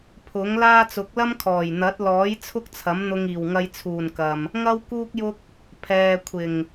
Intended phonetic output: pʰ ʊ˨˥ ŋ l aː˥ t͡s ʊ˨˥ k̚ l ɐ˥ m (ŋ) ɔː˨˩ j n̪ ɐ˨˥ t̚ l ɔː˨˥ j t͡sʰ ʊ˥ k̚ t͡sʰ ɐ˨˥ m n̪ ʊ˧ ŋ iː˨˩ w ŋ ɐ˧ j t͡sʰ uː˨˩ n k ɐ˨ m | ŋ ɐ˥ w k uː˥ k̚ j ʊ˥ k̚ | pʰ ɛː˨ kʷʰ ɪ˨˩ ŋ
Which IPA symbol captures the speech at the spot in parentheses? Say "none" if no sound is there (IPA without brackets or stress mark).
kʰ